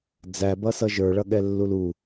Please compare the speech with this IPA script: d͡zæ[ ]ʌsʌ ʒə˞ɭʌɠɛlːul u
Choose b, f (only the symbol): b